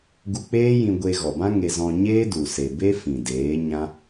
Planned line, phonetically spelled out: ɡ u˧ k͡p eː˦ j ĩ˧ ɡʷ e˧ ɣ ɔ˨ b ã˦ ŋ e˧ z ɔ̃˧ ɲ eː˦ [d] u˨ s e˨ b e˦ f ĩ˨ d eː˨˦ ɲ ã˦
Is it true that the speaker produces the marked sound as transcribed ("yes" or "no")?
yes